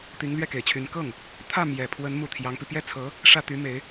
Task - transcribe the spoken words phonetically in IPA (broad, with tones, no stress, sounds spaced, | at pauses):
t̪ i˧˥ ŋ l ɥ ɛ˥˩ k e˨˩ ɪ̯ t͡ɕʰ y˧˥ n k ɤ˥˩ ŋ | t̪ʰ ä˥˩ m j ɛ˨˩ pʰ w ə˧˥ n m u˨˩ t̪ʰ j ɑ˧˥ ŋ p i˧ p j ɛ˥˩ t͡sʰ ɤ˧˥ | ʂ ä˥˩ t̪ y˧˥ m e˧˥ ɪ̯